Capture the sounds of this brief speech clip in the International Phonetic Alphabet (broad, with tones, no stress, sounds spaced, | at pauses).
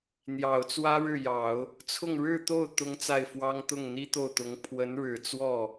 n̪ j ɑ˨˩ ʊ̯ t͡s w ä˥ ɻ ɻ̩˥˩ j ɑ˨˩˦ ʊ̯ | t͡sʰ ʊ˥˧ ŋ ɻ ɻ̩˥˧ t̪ o˥˩ ʊ̯ t̪ ʊ˥ ŋ t͡s a˥˩ ɪ̯ f w ɑ˥ ŋ t̪ ʊ˥˩ ŋ n̪ i˥ t̪ o˥˩ ʊ̯ t̪ ʊ˧˥ ŋ pʰ w ə˧˥ n ɻ ɻ̩˨˩ t͡s w ɔ˥˩